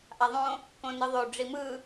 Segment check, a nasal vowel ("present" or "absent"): present